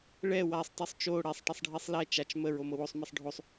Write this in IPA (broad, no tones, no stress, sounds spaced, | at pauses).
ɭ ɛ w a sˤ tˤ o sˤ t͡ʃ o ɽ ɛ sˤ ʈ e sˤ ɖʱ i sˤ l ɛ t͡ʃ a t͡ʃ m ə ɹ o m ɤ w o sˤ m ɛ sˤ ɖʱ o sˤ